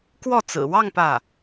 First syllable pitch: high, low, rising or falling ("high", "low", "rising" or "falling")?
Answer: falling